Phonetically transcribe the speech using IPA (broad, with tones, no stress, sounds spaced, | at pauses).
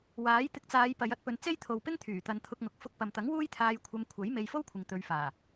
w aː˨˥ j t̪ ɪ˧ k̚ t͡s aː˨˧ j p ɐ˨˧ j ɐ˨˥ t̚ p ɵ˨˧ n t͡s e˥ j t̪ʰ o˨ w p ɪ˥ ŋ t̪ʰ yː˨˩ t̪ ɐ˨˧ n t̪ʰ ʊ˧ k̚ ŋ ʊ˨˥ k̚ f ʊ˧ k̚ p ɐ˨ m t̪ ɐ˨˥ ŋ w uː˥ j t̪ʰ aː˧ j kʷʰ ɐ˧ m kʷʰ ɐ˨˥ j m e˧ j f o˥ w kʷʰ ɪ˨ ŋ t̪ ɵ˨˧ ɥ f aː˨˩